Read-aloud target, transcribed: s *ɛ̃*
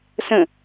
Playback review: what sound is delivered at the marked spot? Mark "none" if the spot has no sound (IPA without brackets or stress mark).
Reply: ə̃